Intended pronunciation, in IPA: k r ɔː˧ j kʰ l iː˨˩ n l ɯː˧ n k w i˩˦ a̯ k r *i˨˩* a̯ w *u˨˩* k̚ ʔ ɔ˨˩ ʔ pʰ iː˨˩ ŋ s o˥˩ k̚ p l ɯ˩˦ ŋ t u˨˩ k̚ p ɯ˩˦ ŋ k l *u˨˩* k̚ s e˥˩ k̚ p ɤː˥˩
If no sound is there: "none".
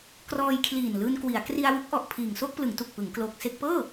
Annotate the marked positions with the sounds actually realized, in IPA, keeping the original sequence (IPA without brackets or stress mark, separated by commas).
i˧, u˦˥, o˨˩